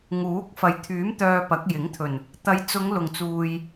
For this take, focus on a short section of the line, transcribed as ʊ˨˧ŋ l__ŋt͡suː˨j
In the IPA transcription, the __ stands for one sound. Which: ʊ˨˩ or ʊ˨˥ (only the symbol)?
ʊ˨˩